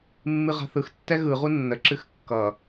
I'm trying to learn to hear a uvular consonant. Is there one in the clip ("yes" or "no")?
yes